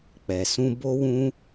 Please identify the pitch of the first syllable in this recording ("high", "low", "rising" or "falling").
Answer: low